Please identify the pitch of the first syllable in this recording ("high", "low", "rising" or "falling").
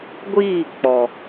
falling